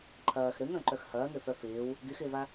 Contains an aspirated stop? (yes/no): yes